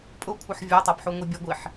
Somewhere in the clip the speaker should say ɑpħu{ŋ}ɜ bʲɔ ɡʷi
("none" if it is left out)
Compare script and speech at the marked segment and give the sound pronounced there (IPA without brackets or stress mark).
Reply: ŋʷ